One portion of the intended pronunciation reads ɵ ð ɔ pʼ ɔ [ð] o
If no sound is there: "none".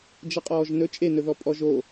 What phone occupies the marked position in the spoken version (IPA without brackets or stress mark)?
ʒ